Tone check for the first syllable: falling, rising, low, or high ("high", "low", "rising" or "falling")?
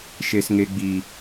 high